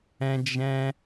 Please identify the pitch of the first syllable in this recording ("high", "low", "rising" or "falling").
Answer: high